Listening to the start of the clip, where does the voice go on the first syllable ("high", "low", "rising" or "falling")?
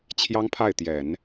high